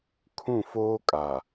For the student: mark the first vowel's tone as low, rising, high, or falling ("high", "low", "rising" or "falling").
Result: falling